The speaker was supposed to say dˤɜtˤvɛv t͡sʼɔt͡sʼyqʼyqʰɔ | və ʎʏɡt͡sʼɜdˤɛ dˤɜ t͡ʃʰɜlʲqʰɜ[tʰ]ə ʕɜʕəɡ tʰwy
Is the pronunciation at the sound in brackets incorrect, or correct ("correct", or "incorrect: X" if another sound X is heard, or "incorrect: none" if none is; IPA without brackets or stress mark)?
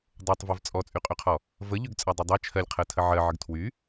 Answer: correct